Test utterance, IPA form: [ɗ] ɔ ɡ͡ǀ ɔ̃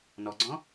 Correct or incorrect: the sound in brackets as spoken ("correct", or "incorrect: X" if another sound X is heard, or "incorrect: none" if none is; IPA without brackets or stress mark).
incorrect: n